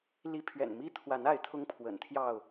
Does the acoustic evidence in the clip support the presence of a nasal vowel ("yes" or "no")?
no